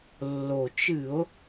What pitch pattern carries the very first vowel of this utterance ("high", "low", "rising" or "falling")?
low